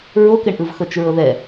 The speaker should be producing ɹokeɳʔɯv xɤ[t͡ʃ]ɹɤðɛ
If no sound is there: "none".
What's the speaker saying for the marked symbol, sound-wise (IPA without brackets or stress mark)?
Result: t͡ʃ